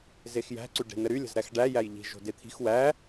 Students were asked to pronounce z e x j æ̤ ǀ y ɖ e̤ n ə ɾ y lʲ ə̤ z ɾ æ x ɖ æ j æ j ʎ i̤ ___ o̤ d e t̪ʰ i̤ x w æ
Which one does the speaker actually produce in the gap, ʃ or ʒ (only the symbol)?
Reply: ʒ